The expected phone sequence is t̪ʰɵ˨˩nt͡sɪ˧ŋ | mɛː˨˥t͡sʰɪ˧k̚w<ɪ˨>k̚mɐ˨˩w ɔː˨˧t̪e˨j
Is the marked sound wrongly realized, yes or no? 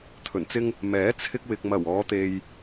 no